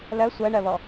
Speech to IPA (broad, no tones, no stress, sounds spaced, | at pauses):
l ɜ sʷ ɜ ɳ ɜ β ɔ